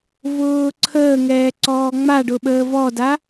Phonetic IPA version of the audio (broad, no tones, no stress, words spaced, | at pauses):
vʊːǀʰəːŋɛː ǀɔːŋ͡maɖʊ ɓəːvɔda